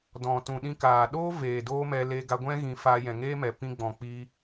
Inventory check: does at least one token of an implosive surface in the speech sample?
yes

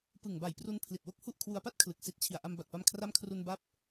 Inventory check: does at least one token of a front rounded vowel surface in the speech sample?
no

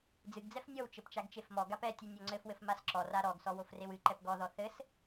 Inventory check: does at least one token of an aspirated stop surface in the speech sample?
no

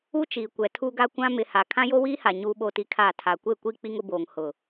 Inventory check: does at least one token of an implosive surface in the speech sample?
yes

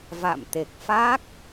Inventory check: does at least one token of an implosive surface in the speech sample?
no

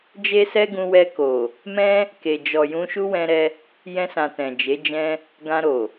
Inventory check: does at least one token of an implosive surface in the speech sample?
no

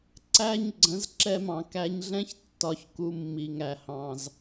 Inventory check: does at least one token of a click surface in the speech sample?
yes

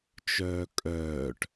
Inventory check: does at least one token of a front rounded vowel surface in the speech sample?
yes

